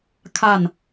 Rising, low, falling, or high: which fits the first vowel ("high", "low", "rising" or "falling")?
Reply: falling